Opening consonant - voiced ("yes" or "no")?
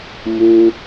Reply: yes